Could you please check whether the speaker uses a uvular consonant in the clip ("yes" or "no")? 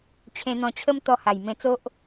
no